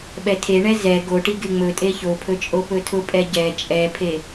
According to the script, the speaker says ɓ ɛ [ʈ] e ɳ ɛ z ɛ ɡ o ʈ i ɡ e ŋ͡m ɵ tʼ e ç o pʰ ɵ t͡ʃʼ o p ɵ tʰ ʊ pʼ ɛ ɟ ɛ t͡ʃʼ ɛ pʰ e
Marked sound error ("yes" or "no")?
yes